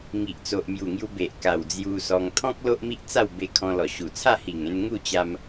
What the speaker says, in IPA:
ŋ i˨ ʔ t͡s o˨ ʔ m j u˨˩ ŋ j u˧ b e˨ ʔ k a˨˩ w d͡z j u˧ s ɔ˧ ŋ t̪ʰ ɔ̃˦ k̚ l o˦ ʔ m i˦ ʔ t͡s a˥˧ w b e˧ kʰ ɔ̃˧ l ɔ˨˩ ɕ u˨˩ t͡sʰ a˥˧ h i˨˩ ŋ ẽ˧ n ŋ u˥˧ t͡ɕ a˧ m

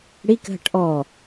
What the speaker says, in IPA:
ɽ i k ɦ ə̤ ʈ ʔ ɔː

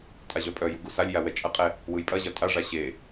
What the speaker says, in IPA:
tʼ a ʑ œ pʼ œ j u ɡ u s a lʲ j a w ɛ t͡ʃʼ ɐ qʼ ɛ | w ɯ j pʼ ɐ ʑ ɐ tʼ a ʐ a ɕ e

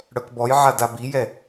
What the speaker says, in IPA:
ɽ œ k b ɔ j ʕ a d a b i j ɛ

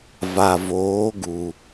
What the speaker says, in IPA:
v a˨ v oː˨˦ ɡ u˨

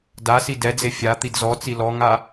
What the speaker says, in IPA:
d a s i d ɛ d͡z e fʲ a t̪ i d z ɔ t͡s i l ɔ ŋ a

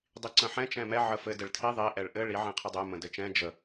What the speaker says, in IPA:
dˤ i ǀ ə̃ ħ ɛ̃ t͡ʃ ɛ̃ m ɛ ʕ ə f ɘ d ɘ ɭ tʰ i ðˤ i ʔ ɛ ɭ ʔ ɘ ɭ i ʕ ɛ̃ qʰ i dˤ ɛ m ə̃ d ɘ t͡ʃ ɛ̃ d͡ʒ ə

